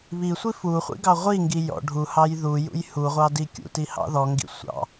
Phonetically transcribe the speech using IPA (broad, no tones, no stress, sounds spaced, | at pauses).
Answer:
β i sʷ i f u χʷ ḭ ɡ ɑ ʁʷ i ŋ ɡ i j ɔ̰ ɖʱ u h ɑ j ð u j ṵ j h u ʁʷ ɑ d i kʲ ṵ t i h ɑ̰ ð ɔ ŋ ɡ ḭ sʷ ɑ̰